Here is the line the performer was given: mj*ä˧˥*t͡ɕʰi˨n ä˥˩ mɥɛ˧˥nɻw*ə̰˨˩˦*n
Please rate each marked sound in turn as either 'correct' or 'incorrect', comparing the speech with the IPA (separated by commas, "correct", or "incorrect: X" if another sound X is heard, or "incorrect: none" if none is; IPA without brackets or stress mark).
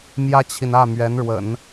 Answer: incorrect: ä˥, correct